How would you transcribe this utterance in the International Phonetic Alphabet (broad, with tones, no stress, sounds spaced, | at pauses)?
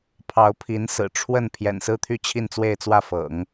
pʰ ɑ˧˥ ʊ̯ pʰ i˧˥ n s ɹ̩˨˩ ʈ͡ʂʰ w ə˥˩ n pʰ j ɛ̰˨˩ n s ɹ̩˥˧ t̪ʰ y˥˧ t͡ɕʰ i˥˧ n t͡s w e˥˧ ɪ̯ t͡s w ä˥˩ f ɤ̰˨˩˦ ŋ